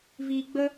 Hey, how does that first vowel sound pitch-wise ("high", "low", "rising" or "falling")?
low